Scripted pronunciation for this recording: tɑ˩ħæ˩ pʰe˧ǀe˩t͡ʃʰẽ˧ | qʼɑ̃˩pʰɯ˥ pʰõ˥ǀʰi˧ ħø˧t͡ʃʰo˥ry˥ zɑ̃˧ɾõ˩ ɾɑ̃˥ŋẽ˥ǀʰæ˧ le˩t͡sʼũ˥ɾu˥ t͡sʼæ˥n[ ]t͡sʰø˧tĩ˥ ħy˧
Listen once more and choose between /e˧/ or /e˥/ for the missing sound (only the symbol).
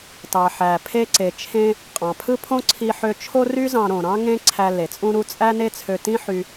e˥